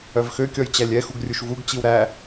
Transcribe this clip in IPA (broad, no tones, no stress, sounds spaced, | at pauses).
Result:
œ v x ø kʲ ɔ j t͡ɕ æ lʲ ɛ x u ɡ rʲ u ʃ v u ɡ t͡ɕ i w ɾ æ